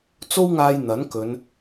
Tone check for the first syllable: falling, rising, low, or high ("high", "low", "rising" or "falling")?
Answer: high